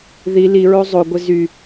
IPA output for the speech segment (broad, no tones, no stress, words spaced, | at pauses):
ði liɹo zˤoɡʷɪ zy